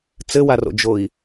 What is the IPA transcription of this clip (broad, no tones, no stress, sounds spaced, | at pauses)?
t͡s ɘ w a r o̰ d͡ʒ o i̯